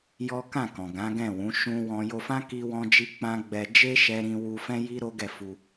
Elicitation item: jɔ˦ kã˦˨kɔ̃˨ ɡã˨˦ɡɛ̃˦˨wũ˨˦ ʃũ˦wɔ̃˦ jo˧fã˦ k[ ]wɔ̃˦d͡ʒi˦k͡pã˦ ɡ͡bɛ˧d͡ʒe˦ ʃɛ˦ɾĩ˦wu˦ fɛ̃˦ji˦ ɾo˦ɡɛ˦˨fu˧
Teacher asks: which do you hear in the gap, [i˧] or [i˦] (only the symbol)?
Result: i˦